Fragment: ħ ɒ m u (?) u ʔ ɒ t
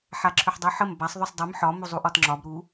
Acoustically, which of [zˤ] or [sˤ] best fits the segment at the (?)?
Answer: zˤ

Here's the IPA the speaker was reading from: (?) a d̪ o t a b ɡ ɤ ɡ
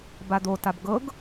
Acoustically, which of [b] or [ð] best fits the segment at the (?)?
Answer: b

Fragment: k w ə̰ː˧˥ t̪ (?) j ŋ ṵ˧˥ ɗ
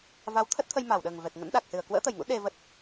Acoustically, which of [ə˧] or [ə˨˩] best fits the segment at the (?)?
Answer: ə˨˩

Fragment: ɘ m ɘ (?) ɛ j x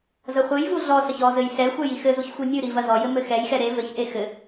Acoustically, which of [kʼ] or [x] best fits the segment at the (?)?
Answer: x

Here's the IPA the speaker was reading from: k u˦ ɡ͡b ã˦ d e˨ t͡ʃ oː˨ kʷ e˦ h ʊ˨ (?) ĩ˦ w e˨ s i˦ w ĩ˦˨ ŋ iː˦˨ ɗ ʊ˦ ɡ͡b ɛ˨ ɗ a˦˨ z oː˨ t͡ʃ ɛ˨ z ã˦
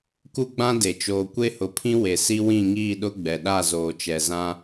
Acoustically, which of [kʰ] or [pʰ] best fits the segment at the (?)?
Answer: pʰ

